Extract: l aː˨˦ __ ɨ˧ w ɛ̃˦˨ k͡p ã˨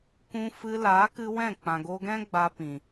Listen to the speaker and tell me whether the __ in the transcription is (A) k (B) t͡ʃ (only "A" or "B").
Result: A